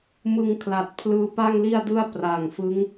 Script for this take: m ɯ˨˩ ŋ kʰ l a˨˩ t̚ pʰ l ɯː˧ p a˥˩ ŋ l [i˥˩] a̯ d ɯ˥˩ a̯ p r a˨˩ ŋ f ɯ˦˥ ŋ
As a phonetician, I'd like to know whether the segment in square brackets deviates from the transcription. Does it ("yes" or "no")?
no